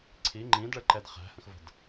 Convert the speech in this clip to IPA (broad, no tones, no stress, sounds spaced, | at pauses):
ǀʰ i ŋ͡ǃ ĩ d ɭ ə ǃ ɛ d χ æ̤ h ə̃ x v ə̤ d